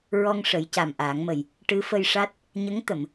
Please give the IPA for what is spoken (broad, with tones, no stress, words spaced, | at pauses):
ɹɔ˧ŋ ʂə˨˩˦jca˨˩mʔaː˨˩˦ŋmə˨˩j | ʈɨ˧˥fə˧jʂa˦˥t̚ | ɲə˧˥ŋ t̪ə˨˩˨m